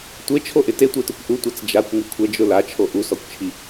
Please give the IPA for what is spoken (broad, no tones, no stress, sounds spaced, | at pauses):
tʷ e t͡ʃʰ o ʔ ɪ t e tʷ e t ʊ kʷ ʔ u tʷ a t͡s d͡ʒ a kʷ ŋ u kʷʰ ɛ d͡ʒ ʊ l a t͡ʃʰ o ʔ u s ɔ kʷ t͡ʃʰ i